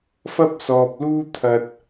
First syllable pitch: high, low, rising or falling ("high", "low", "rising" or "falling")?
high